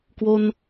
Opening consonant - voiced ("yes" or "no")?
no